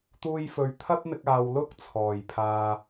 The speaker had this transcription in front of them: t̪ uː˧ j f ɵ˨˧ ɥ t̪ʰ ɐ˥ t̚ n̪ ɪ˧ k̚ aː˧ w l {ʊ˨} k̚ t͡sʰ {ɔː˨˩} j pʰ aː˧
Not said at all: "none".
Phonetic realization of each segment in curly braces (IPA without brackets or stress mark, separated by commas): ʊ˥, ɔː˨˩